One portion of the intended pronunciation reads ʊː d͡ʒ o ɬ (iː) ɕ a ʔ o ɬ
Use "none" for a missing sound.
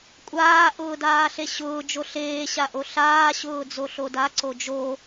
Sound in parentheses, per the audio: eː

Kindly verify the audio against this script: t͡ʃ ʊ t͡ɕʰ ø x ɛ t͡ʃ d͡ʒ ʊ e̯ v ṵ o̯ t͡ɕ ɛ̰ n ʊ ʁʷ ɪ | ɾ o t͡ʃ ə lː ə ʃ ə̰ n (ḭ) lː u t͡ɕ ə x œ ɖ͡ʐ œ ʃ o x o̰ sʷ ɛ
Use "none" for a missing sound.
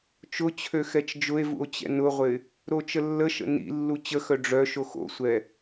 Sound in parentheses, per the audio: ḭ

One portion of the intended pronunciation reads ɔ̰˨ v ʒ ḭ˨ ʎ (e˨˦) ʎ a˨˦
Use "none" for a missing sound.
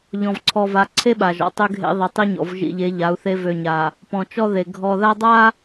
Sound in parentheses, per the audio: e˨˦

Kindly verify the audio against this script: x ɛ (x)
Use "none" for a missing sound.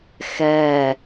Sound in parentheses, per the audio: none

